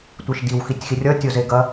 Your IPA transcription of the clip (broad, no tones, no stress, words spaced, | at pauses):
tʷiʃdiw xitʲxirʲʌ tʲozeɡɐ